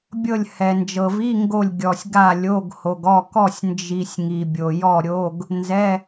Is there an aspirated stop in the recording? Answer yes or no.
no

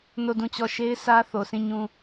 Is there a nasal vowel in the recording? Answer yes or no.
yes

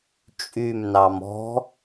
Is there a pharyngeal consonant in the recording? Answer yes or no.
no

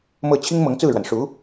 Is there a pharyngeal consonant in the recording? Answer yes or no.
no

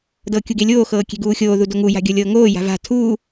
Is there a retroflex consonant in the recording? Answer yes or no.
no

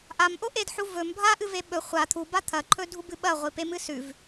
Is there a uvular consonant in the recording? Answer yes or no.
yes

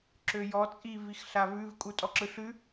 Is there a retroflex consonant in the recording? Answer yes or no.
no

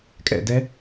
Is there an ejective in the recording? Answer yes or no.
yes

